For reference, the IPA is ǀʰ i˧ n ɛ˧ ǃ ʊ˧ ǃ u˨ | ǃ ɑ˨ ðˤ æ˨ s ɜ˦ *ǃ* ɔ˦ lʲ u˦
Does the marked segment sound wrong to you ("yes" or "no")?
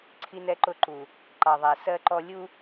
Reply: no